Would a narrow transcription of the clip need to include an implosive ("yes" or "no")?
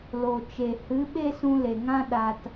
yes